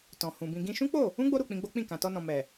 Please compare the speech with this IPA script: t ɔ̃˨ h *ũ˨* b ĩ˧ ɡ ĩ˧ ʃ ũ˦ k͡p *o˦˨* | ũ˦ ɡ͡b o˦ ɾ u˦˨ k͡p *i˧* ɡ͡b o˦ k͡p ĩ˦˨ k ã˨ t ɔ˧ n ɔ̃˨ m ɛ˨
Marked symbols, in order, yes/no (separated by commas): yes, yes, no